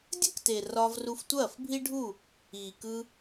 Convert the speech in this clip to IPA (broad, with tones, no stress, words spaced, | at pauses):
dʲə˦kte˨ rɒː˧v ru˧ftʷɐː˦˨fbʱi˦ɖʱu˦˨ | iː˨kɯ˧